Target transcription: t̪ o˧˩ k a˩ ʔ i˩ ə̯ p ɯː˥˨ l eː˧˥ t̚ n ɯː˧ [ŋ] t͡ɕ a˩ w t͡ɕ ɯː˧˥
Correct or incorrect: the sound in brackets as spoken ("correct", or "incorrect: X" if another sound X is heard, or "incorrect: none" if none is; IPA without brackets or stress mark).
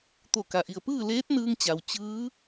correct